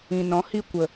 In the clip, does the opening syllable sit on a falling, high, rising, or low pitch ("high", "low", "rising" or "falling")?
low